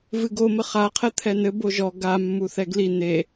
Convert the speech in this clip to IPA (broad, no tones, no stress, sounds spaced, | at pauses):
v ɨ ɡ o m ɘ χ a qʰ ɛ t̪ʰ ɛ n ɘ b o ʒ ɔ ɡ a mː u θ ɛ ɡ l i n e